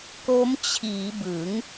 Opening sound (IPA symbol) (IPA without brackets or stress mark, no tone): k